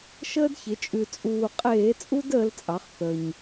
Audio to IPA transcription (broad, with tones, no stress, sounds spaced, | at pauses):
ʃ əː˦ d ç ɪ˩˧ t͡ʃʼ ʉ˨˩ t͡sʼ uː˨˩ qʼ eː˧˩˧ t͡sʼ u˦ d əː˦ l t͡sʼ ɑ˩˥ χ θ ə˨˩ ɲ